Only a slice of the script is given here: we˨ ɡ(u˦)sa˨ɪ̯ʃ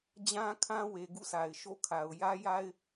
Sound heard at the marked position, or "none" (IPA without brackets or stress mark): ṵ˦˨